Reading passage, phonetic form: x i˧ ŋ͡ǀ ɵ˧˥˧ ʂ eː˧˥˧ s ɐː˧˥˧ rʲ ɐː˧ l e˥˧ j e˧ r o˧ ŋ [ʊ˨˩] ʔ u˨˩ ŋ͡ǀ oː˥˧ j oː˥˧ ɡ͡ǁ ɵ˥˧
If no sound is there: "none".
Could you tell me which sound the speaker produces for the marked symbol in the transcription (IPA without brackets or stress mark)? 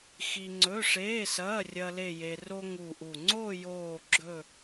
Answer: u˨˩